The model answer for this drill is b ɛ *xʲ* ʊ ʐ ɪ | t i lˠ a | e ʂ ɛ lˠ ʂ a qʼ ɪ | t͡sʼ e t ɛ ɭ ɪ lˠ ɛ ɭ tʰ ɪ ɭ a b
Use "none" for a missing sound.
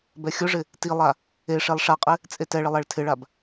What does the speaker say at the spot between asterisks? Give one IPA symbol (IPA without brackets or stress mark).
xʲ